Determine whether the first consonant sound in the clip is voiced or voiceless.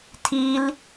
voiceless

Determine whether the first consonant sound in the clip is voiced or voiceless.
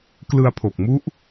voiceless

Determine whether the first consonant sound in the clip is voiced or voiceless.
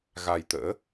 voiced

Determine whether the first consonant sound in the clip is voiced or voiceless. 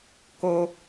voiceless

